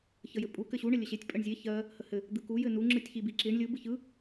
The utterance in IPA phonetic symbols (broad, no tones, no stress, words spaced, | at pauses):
çəjɘpʼu kɘɕu ɳəlʲəɕetʲ pʼəɳzʲe çɜ | həhɘ | d̪ɯku jɘnu ŋ͡ǁɯtʲçibiǁiɳ lʲɯ bɯçɯ